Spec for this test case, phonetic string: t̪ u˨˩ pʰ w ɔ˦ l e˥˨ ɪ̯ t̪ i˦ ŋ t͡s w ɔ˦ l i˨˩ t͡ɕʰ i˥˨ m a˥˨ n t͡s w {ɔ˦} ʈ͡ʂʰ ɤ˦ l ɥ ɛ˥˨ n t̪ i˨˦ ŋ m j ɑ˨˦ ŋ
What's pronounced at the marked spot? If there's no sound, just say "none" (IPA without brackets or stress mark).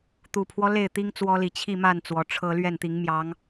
ɔ˨˩